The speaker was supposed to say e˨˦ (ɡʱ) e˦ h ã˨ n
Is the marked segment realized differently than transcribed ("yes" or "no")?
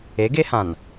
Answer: yes